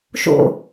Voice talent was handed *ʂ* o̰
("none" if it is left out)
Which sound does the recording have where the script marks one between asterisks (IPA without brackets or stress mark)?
ʃ